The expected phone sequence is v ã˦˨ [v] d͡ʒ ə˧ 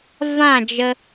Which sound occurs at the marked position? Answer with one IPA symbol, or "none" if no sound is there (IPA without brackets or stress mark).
none